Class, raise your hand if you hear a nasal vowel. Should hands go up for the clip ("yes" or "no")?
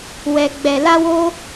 no